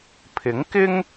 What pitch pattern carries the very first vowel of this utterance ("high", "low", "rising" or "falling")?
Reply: rising